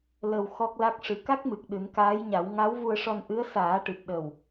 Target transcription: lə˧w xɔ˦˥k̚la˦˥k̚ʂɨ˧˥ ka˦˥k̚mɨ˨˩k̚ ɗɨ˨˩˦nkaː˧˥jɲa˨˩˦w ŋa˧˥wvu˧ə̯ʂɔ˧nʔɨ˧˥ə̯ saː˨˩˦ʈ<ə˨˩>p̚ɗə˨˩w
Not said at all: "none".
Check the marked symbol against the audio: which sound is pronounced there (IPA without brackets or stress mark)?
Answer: ɨ˨˩